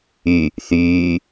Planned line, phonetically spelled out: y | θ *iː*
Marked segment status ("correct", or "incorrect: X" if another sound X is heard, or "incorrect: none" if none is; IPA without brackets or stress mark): incorrect: yː